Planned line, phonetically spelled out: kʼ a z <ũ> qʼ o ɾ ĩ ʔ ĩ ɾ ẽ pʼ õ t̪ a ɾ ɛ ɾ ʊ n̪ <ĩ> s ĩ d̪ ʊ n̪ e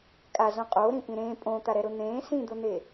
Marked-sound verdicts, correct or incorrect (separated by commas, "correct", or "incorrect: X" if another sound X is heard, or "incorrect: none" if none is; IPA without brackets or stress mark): incorrect: õ, incorrect: ẽ